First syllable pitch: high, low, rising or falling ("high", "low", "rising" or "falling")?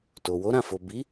low